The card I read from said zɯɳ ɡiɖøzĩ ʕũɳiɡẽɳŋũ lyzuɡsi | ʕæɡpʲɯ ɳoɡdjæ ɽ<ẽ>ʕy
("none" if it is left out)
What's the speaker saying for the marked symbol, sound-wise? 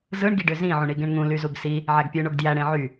ẽ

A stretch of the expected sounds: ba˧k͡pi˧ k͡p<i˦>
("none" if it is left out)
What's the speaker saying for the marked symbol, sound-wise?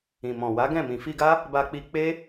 e˦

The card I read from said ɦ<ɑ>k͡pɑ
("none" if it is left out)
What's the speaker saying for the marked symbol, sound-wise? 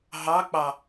ɑ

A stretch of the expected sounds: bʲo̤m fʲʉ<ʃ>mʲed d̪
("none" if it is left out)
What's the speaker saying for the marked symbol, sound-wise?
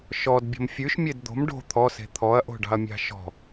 ʃ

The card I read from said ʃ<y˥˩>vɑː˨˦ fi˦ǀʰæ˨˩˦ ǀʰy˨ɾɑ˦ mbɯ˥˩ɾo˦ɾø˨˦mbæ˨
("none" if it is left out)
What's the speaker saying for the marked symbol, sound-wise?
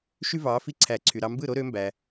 y˦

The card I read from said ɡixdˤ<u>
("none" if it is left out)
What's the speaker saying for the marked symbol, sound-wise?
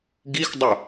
u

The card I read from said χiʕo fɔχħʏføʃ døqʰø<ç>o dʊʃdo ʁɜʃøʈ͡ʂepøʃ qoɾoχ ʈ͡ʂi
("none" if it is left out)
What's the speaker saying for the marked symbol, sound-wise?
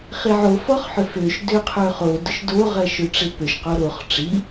χ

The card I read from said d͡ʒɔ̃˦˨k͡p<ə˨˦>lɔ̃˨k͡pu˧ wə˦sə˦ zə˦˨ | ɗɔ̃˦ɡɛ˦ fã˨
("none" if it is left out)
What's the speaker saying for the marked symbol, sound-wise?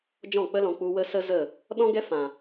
ə˦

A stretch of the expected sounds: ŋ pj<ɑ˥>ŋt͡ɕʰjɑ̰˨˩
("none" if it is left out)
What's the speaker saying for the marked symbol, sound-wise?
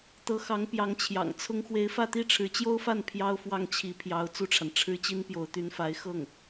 ɑ˧˥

